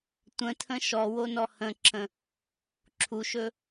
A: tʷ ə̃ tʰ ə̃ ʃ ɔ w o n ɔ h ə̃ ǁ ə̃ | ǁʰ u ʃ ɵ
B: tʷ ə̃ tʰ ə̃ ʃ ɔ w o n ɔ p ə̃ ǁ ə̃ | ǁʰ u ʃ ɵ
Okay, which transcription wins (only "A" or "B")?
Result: A